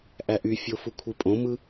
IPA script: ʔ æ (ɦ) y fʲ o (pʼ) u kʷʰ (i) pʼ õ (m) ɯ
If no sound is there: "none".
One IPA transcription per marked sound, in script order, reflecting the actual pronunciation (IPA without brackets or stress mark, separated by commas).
ʔ, f, i, m